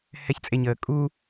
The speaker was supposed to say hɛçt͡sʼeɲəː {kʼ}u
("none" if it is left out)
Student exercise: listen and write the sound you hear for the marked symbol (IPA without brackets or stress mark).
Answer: kʼ